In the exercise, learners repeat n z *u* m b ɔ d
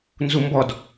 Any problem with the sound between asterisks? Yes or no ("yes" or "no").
no